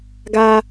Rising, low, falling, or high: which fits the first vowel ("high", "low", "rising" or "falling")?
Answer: high